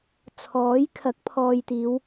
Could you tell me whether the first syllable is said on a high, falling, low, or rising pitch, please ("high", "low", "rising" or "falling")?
rising